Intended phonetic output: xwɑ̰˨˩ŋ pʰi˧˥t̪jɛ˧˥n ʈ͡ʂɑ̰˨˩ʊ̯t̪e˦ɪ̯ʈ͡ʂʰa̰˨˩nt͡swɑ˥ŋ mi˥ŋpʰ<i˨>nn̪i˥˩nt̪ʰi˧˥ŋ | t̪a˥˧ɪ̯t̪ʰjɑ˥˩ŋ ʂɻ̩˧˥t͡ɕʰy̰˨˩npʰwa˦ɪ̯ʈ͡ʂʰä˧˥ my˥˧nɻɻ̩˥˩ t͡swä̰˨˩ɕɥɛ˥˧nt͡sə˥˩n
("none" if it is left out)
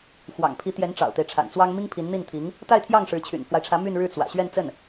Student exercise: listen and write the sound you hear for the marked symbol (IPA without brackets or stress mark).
i˧˥